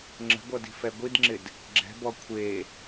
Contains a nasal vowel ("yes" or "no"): no